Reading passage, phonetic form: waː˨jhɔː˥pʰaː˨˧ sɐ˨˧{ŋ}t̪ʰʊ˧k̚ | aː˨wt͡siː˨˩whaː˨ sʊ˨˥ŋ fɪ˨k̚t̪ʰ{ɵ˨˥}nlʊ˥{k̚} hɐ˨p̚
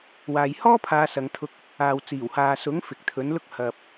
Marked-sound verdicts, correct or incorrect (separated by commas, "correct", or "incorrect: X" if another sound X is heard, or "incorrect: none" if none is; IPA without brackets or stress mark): correct, correct, correct